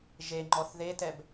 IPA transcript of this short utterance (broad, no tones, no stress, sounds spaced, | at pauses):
ʒ e ŋ͡ǃ ɔ θ ð e t ɛ b